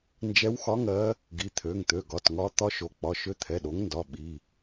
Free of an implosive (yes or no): no